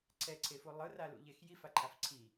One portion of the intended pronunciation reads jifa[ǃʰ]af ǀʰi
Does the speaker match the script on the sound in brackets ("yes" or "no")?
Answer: yes